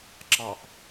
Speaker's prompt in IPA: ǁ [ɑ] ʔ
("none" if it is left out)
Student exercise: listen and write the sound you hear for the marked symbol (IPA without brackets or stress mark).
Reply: ɑ